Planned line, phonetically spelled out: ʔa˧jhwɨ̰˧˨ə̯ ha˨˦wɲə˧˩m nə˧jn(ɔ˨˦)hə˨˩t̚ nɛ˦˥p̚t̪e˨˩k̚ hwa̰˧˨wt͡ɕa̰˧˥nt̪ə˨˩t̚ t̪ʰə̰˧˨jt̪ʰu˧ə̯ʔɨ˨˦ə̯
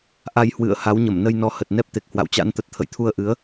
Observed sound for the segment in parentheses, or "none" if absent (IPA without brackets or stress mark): ɔ˨˦